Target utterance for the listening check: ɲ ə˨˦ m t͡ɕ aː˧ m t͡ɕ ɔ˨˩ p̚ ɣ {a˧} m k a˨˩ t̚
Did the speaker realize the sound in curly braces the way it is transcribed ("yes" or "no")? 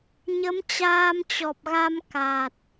yes